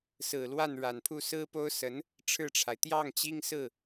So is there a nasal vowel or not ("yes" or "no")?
no